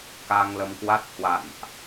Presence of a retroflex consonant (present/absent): absent